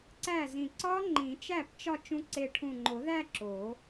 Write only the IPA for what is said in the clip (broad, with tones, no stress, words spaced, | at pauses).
ǀæ˥˩zĩ˧˩ ǀɒ˦˥ ŋ͡ǃĩ˨˩˦t͡ʃæ˥˩p t͡ʃɒ˥˧ t͡ʃũ˦˥ ǀe˧˩ʈʰũ˧˩ŋ͡ǃo˨˩˦ðæ˥˧ ǁo˨˩˦